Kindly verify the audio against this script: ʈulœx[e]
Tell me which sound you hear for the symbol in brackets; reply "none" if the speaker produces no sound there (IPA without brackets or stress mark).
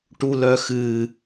ɨ